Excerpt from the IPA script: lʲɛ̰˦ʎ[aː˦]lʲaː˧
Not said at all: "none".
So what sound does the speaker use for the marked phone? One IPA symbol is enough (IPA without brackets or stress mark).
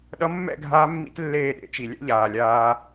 aː˨